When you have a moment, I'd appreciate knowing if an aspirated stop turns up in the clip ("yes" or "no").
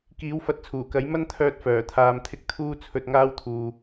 yes